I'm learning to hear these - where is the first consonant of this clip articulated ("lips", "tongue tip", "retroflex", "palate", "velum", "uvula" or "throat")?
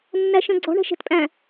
tongue tip